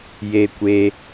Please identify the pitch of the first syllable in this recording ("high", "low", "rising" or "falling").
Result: high